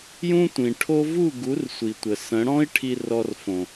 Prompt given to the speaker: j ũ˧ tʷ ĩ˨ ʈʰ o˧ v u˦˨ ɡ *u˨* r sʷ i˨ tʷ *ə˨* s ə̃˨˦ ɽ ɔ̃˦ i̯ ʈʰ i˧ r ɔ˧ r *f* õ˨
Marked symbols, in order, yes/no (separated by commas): no, yes, yes